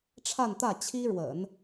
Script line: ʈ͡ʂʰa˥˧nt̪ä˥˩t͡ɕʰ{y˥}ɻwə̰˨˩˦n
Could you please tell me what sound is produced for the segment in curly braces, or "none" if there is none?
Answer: i˥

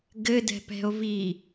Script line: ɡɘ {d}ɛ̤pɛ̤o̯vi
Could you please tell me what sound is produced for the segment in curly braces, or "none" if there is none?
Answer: d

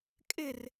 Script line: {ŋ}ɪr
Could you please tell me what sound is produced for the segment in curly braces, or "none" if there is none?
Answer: kʼ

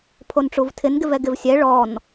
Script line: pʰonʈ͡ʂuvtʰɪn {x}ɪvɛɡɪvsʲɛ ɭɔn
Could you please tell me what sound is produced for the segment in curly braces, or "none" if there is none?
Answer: ɡ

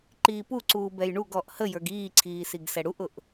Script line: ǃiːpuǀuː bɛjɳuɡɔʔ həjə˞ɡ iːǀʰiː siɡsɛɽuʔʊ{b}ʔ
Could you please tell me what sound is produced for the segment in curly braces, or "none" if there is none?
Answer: none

